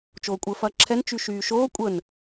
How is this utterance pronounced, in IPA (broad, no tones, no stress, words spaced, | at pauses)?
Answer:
t͡ʃoːkʷʼəːfɐːǁʰɛn t͡ʃyʃyːʃoː kʷʼəːn